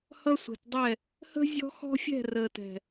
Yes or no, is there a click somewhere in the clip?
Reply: no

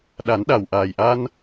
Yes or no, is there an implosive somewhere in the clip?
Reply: yes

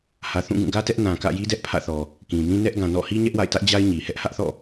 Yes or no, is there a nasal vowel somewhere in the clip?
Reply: yes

